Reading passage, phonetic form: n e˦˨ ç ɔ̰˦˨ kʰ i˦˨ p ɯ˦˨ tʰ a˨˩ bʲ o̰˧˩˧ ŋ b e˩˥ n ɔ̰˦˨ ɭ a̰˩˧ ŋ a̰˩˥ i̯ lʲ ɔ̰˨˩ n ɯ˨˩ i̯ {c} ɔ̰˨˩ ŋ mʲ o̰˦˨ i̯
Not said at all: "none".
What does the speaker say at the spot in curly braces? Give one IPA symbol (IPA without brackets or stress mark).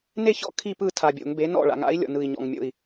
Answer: ɲ